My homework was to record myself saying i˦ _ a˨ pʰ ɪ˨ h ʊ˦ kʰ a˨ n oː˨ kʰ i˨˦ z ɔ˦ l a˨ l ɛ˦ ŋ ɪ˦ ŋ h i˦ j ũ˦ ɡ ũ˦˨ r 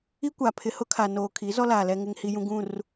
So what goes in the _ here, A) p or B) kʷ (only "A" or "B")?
B